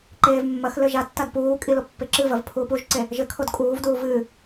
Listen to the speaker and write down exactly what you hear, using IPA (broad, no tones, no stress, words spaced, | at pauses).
ǃeːvmːɐxlɘ ʒatːad puːkʼi lopːeǁɨvɐv pʰuːpuʒǀe | ʒɘkʰod kʼuːvduːv ɨ